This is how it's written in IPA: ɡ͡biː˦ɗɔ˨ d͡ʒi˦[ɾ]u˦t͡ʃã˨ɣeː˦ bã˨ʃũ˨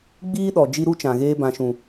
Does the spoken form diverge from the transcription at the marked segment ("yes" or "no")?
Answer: no